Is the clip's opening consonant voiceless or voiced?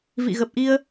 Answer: voiced